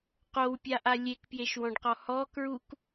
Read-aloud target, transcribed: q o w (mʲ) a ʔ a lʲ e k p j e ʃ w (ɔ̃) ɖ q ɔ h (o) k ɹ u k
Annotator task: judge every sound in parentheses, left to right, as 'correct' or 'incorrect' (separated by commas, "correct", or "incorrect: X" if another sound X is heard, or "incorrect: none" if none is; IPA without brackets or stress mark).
incorrect: pʲ, correct, incorrect: ɔ